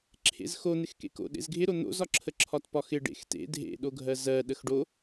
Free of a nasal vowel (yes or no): yes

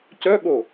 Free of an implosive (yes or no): no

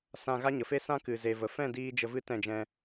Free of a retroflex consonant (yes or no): yes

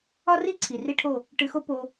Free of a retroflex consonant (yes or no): no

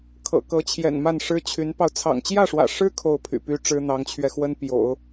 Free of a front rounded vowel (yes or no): no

